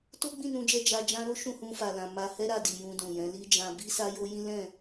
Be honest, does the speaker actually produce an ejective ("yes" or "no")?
no